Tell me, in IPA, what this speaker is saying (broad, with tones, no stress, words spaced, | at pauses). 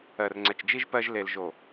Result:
ɜ˨rŋ͡ǀɛ˨t͡ʃd͡ʒi˦ʒ pɜ˦ʒ le˨lʒo˨